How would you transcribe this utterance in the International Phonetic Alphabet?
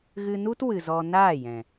ɣɨ˧nu˦t wɨ˨zɔ˧ naː˦˨jɛ̃˨

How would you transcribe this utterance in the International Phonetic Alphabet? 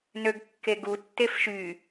nøɡkːeɡu tːefʃy

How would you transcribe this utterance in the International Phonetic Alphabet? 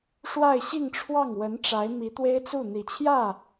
ʂwa˥˧ɪ̯ ɕi˥˧ŋʈ͡ʂʰwɑ˥˩ŋ wə˧˥nʈ͡ʂa˧˥ɪ̯ mi˧˥t̪we˥ɪ̯t͡su˥˩ n̪i˨˩t͡ɕʰjä˥˩

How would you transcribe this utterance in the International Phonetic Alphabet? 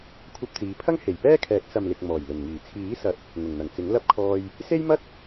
kʷʰɐ˧p̚t͡siː˨˧pʰɐ˥ŋ he˨˩jpɛː˥kʰɛː˨˥k̚ sɐ˨mlɪ˨k̚ mɔː˨˩jlɵ˨˩nŋiː˨˩ t͡sʰiː˨˥sɐ˨˥t̚ | ŋʊ˨˩ŋn̪ɐ˨˩ŋt͡sɪ˨˥ŋ lɐ˥p̚kʰɔː˧j | se˥jmɐ˥t̚

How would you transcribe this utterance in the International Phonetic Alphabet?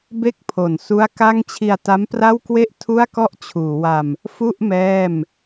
be˥˩k̚pʰo˨˩n su˦˥a̯ ka˥˩ŋ t͡ɕʰi˧a̯ta˦˥mpra˥˩wkwe˥˩ʔ tʰu˥˩a̯kɔ˥˩ʔt͡ɕʰuː˩˦wa˧m | fu˥˩ʔ mɛː˥˩m

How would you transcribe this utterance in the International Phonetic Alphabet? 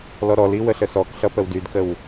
lɔɾɔli wəɬəsɔkɬʌ pəwdydkəw

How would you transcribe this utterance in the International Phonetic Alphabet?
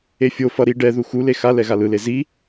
efʲofʌ ɾi ɖɛðu xule xa lɛɣalɯle zi

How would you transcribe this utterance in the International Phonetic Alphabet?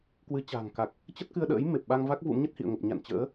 kwɨ˨˦t͡ɕa̤ː˨˩ŋka˨˩k̚ | t͡ɕə˦˥t̚kɨ˧ə̯ɗə̰ː˧˥j me˨˩p̚ɓa˧ŋva˦˥k̚ vṵ˧˥mɲə˦˥t̚hḭ˧˨ə̯ŋə˨˩p̚ ɲa̰˧˨n t͡ɕə̰ː˧˥

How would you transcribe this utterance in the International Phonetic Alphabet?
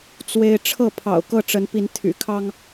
t͡swe˦ɪ̯ ʈ͡ʂʰɤ˥˨pʰɑ̰˨˩ʊ̯ kɤ˥˨ʈ͡ʂə˨˦npi˨˦n t̪ʰy̰˨˩kʰɑ˦ŋ

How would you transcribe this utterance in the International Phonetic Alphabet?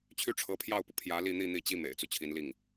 t͡ɕʰy˥ʈ͡ʂʰɤ˧˥pʰjɑ˥˩ʊ̯pu˩ pʰjä˧˥li˥˧n̪i˥˧ n̪i˥˩t͡ɕi˥ mḛ˨˩ɪ̯t͡su˦ t͡ɕʰi˧˥n li˥˩ŋ

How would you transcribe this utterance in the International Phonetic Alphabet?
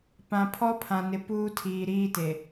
pã˨pʰɔ˦pʰã˨nɪ˨ puː˦tʰiː˨ɾiː˦te˨

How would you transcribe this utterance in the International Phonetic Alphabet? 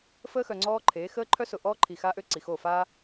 fəː˦xœ˨ŋ͡ǀɔː˦ǃʰeː˨˦ xəː˦ǃʰœ˦ sʊ˨ ʔɔː˦ǃʰi˨ xa˦ʔø˦ ǀi˨xo˦˨faː˦

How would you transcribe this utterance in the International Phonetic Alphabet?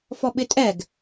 fɔɓɪtʼɛɡ

